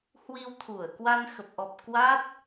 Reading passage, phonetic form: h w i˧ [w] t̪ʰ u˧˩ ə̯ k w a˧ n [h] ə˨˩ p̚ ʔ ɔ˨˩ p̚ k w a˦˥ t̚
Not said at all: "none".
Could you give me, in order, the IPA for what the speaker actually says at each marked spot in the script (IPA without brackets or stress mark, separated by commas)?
w, x